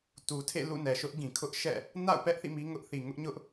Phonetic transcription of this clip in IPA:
tu˨tʰḛ˦˨ lṵ˦˨nɛ˨ʃʊ˦ʔɡĩ˨ kʰʊ˦ʔʃɛ̰˦˨ | na̰˦˨ʊ̯pɛ˦ʔ θḭ˦˨mi˦ŋʊ˦ʔθi˨ ŋʊ˦ʔɲʊ˦ʔ

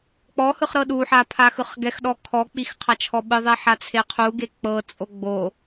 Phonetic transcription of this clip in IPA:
k͡pɔhɯχ ɾɤɗuħa pʰaxɯχɡɛxɗɔ kʰɔk͡pix qʰat͡ʃʰɔɓɯðˤɛ ħat͡sʰeqʰuɡe k͡pɤt͡sʼo ɡ͡bo

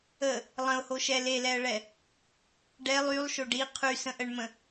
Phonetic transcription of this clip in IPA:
ə | lˠə̃ʊ̯hoʃɛ lelɛə̯ɭɛ | ɖɛlˠ ylˠʃoɖ i qʰysə̃ʔəɳmə̃

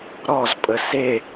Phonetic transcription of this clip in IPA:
ɾɔzpʼə se

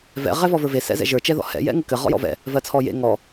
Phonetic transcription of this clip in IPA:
vɛ̰ ʁɛvɔvə˞ve sɛ̰zɛ̰ʒə˞ t͡ʃɛðɔ̰hɛ̰ jɛ̰ŋɘkɘ ʁɔ̰jɔ̰vɛ̰ | vɜt͡sʰɔjḛ ŋɔ

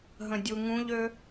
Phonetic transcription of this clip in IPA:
ɦə̃dʲuŋũʎø

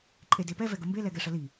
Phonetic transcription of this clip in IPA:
ǃʼedepɛ vɛɡəmbe lɛɡɛʂəli

